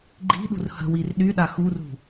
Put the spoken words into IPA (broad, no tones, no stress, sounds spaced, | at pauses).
ɡ͡ǃ i̤ ɗ ṳ r h ə̤ w i r ɗ y ɗ a x u r ṳ